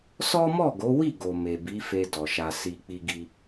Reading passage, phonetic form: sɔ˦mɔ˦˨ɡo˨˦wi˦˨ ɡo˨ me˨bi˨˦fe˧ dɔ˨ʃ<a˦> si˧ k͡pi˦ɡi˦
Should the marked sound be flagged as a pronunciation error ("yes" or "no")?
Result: yes